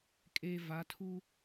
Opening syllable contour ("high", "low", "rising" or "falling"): low